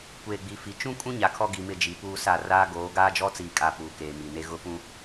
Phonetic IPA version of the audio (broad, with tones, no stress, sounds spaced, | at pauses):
kʷ eː˨ ɡ͡b i˨ f i˨ t͡ʃ ũ˦ kʼ ũ˦ ɲ a˨ kʰ ɔ˦ ɡ i˨ m ɪ˦˨ d͡ʒ i˨ p uː˦ s a˦˨ r aː˦ ɡ oː˨˦ ɡ aː˦ d͡ʒ ɔ˦ t͡s iː˨ kʼ a˨ p uː˨ k eː˨ m i˨ n e˦ ɣ ʊ˦ f ũ˦